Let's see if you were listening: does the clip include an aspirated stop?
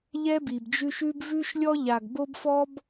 no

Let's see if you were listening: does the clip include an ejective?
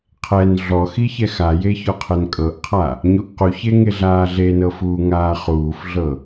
yes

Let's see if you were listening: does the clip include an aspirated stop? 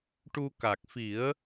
no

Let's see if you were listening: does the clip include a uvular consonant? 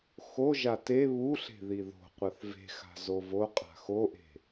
yes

